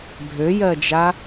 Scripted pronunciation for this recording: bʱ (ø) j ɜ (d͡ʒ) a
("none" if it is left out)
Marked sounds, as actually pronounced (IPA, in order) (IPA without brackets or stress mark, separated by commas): ø, d͡ʒ